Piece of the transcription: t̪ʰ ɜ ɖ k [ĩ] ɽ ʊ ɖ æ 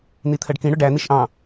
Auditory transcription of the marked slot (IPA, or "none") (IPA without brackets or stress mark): ĩ